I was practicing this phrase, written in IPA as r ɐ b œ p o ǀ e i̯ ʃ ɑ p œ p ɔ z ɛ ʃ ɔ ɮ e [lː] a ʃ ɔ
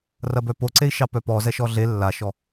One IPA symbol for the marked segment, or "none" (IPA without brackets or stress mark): lː